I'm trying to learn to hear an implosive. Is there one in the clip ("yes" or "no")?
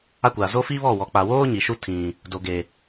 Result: no